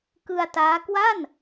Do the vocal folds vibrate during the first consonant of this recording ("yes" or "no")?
no